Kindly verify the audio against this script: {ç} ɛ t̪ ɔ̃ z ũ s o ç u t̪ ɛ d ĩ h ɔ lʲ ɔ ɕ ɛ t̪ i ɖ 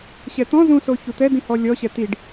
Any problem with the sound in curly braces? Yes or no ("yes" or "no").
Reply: yes